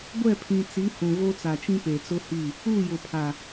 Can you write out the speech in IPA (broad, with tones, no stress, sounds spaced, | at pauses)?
ɡʷ ɛ˦˨ pʰ ĩ˨ t͡s i˨˦ h ũ˨ ɣ o˦ t͡s a˨ t͡ʃ ĩ˦ p e˨ t͡s ʊ˦ h i˦˨ | u˦˨ j ʊ˨ pʰ a˨